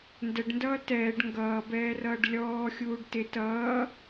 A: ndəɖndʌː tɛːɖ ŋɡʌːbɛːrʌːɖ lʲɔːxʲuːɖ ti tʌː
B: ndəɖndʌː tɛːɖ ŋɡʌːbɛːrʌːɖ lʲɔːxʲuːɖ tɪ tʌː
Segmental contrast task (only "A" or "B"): B